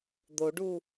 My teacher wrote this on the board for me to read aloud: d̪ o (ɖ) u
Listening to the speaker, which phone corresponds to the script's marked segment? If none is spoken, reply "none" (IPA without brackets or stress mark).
ɖ